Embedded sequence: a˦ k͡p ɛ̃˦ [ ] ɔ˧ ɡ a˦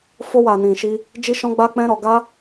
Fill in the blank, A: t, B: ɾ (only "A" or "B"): B